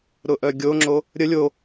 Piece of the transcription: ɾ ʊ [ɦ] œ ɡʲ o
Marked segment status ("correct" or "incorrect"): incorrect